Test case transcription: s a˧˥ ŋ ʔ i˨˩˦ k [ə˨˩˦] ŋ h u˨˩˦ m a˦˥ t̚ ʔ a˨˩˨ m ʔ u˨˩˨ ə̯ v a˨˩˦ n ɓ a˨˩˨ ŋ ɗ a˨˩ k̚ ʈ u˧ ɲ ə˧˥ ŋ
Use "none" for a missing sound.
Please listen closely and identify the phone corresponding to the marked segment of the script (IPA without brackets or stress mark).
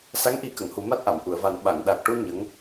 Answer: ə˨˩˨